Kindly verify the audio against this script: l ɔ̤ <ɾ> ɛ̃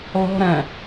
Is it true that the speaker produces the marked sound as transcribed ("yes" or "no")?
yes